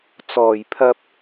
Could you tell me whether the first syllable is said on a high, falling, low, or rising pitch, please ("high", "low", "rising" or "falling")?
low